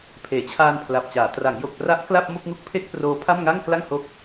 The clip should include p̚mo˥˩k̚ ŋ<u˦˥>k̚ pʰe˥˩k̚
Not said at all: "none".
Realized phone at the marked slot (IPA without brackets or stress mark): u˦˥